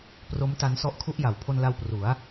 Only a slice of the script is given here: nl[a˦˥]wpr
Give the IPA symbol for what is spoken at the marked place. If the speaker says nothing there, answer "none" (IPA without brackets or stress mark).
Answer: a˧